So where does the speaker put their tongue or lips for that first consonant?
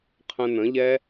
uvula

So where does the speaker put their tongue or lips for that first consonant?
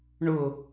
retroflex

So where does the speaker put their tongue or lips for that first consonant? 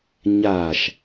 palate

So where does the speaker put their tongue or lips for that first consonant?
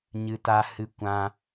palate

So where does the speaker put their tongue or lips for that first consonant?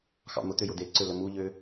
velum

